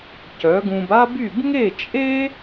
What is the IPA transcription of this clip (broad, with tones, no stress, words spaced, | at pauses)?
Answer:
cœ˩˥ɡũ˧b a˥by˥˩b ŋe˥˩t͡ʃʼe˥